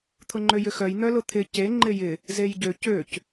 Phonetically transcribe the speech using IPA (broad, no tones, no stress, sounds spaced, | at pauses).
t̪ʰ ʊ ŋ͡ǃ ø j ʏ x œ j n̪ œ l ʊ t̪ʰ ɪ c e ŋ͡ǃ ɪ j ɪ | z e j ɟ ø c ø c